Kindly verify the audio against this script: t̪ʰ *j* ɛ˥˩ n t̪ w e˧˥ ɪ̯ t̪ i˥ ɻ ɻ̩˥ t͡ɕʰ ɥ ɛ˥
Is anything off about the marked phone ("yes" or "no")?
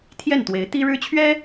no